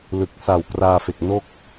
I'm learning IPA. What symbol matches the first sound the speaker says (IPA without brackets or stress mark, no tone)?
l